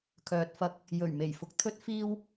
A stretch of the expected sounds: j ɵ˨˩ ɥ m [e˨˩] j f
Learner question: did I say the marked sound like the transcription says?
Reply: yes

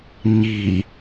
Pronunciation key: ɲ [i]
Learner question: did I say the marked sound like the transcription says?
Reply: yes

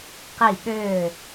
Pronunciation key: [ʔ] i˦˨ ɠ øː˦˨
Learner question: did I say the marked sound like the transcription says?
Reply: no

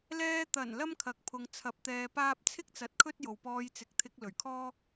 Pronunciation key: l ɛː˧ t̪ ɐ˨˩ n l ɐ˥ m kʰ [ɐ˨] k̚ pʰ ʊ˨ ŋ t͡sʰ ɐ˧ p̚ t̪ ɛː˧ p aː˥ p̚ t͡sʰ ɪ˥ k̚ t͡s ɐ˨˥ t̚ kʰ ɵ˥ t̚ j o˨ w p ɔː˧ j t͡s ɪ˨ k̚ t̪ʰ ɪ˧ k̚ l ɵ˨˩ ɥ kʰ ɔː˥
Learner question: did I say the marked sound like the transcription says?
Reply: yes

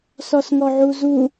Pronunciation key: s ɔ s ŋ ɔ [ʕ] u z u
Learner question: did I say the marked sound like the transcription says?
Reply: yes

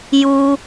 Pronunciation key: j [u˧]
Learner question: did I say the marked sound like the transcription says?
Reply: yes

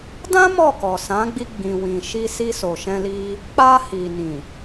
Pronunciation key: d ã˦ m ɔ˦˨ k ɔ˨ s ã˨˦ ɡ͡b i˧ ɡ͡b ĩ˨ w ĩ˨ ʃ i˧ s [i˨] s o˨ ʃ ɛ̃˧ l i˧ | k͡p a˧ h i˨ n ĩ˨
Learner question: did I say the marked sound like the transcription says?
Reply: no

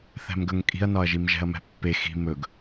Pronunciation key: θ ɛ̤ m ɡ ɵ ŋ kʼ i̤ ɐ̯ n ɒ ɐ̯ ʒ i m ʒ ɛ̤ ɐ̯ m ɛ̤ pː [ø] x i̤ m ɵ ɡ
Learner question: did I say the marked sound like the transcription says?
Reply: no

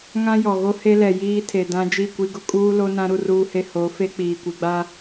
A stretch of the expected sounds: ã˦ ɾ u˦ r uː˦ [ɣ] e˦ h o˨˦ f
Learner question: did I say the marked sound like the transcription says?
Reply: no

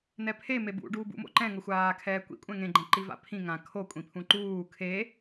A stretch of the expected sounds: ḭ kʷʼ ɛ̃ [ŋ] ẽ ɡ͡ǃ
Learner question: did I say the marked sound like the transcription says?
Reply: yes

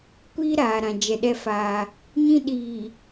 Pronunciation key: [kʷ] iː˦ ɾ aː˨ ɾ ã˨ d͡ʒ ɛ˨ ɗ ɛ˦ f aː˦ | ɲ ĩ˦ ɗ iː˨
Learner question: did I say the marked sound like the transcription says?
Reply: yes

